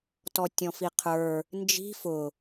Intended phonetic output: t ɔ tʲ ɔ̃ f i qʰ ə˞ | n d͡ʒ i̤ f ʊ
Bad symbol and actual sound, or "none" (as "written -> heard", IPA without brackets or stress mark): none